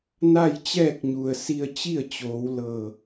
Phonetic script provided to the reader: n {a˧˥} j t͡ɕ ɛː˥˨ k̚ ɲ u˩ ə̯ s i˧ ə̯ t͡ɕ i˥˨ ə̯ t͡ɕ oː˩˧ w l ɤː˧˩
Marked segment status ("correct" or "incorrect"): incorrect